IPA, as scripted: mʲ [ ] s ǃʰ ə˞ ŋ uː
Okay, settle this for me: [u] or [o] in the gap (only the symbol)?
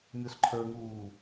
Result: o